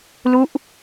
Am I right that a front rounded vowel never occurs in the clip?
yes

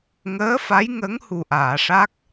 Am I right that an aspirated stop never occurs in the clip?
yes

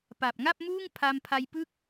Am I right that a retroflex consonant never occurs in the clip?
yes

